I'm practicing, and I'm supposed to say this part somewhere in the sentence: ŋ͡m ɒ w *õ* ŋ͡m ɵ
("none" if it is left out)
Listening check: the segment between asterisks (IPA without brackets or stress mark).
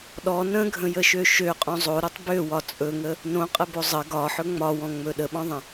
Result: ɔ̃